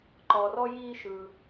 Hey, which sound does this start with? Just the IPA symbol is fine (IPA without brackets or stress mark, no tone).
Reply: ǃ